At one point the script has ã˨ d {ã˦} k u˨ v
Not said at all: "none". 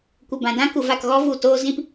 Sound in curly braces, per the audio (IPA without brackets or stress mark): ã˦